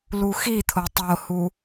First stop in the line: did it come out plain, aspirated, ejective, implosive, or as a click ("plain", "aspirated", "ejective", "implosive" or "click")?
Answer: aspirated